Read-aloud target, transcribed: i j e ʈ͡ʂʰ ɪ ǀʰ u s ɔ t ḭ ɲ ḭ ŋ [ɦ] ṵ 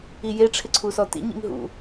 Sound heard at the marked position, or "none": ɦ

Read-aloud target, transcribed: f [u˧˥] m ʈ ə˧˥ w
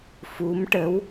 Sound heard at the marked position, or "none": u˧˥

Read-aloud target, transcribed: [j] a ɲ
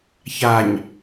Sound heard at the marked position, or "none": ç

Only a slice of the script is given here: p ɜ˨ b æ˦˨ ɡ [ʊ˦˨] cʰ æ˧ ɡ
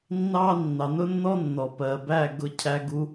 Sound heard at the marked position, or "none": ʊ˨˦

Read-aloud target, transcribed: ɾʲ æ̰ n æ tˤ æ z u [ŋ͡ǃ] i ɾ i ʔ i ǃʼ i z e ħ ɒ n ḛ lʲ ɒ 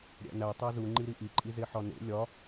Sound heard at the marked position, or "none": ŋ͡ǃ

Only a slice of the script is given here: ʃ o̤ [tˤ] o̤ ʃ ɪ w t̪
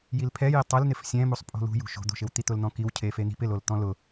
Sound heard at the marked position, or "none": d̪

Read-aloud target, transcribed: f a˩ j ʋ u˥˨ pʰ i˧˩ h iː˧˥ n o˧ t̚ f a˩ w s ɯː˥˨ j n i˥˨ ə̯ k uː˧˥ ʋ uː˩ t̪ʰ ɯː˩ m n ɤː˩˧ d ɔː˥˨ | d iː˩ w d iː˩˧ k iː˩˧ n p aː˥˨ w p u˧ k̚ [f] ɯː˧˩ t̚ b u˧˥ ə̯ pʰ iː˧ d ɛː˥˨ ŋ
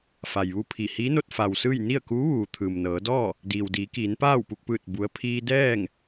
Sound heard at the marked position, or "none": p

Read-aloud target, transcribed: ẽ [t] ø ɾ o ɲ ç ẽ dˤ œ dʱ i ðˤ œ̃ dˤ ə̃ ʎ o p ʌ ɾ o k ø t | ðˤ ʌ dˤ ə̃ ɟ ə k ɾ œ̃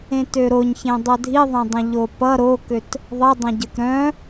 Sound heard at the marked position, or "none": t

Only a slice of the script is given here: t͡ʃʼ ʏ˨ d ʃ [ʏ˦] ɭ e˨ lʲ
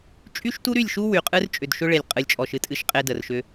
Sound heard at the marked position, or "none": ʏ˦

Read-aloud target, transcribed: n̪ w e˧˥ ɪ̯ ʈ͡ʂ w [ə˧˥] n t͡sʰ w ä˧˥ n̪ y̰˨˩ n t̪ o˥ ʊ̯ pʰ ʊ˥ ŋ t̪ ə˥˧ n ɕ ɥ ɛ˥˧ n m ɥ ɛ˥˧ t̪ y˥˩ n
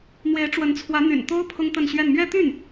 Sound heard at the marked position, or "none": ə˧˥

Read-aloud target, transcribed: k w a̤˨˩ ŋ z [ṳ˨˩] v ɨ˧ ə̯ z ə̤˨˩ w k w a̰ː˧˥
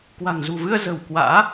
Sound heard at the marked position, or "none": ṳ˨˩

